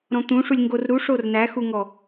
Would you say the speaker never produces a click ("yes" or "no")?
yes